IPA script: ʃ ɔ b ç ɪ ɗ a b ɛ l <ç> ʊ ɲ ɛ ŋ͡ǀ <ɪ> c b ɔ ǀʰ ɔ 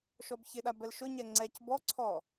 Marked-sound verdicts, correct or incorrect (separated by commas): incorrect, incorrect